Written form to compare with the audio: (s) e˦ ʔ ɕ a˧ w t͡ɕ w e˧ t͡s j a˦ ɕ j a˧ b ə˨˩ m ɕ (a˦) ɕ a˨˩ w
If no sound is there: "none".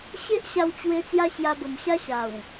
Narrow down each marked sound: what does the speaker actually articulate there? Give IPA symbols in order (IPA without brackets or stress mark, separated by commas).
ɕ, a˦